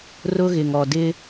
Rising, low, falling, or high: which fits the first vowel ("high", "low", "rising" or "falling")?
high